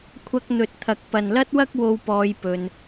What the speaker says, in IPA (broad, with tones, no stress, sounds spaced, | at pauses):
kʷʰ ɐ˧ k̚ n̪ ɵ˨ t̚ t̪ʰ ɐ˨ k̚ p ɐ˨ n l ɐ˥ t̚ w ɐ˥ k̚ w o˧ w p ɔː˧ j p ɵ˧ n